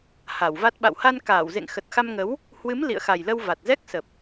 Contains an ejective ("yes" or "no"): no